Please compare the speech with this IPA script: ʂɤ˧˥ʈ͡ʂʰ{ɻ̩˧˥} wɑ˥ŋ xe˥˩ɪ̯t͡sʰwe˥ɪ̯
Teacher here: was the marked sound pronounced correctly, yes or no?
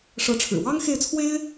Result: no